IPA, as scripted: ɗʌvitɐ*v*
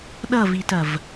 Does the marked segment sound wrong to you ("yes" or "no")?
no